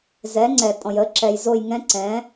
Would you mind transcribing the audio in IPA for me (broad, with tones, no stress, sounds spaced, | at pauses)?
z ɛ˩˥ ŋ͡ǀ ɛ˩ tʼ ɔ̃˩ j ə˩˥ ǁ ɛ˩ j z o˦˨ j ŋ ɛ̃˦˥ ǀ ɛ̃˩˥